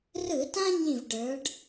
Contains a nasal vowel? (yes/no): yes